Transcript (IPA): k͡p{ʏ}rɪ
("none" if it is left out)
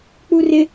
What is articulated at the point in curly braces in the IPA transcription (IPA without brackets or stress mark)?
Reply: u